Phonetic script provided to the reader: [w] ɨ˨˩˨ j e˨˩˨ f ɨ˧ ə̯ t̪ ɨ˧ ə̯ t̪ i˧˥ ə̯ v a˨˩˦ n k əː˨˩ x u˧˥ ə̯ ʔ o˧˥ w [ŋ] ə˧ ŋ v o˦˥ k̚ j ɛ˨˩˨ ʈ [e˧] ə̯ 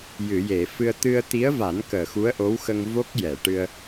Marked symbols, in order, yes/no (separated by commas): no, no, no